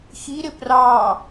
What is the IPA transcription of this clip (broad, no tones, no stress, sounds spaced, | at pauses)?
x i ɾ ɪ p r ɑ